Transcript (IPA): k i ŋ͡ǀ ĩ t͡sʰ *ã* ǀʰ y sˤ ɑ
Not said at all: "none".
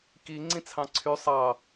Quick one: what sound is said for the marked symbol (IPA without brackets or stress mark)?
ɑ̃